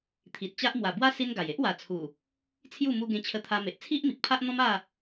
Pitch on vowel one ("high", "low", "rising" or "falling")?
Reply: low